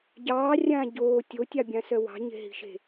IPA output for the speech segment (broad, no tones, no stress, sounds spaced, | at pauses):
ɟ ɑː rʲ ãː ɟ oː tʲ o tʲ ɑ bʲ ã s œ w ɑ̤ ɲ e̤ ɦ i̤ ʃ e̤